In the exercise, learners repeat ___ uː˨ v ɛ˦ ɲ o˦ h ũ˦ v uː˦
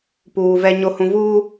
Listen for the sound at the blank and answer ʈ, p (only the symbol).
p